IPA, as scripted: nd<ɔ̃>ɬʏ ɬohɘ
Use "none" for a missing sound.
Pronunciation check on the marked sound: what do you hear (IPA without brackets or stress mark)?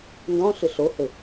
ɔ̃